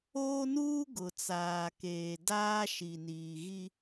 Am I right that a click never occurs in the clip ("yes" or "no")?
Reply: yes